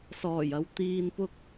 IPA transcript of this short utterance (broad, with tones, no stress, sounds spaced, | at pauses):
s ɔː˨˩ j ɐ˨˧ w t̪ iː˧ n p ʊ˥ k̚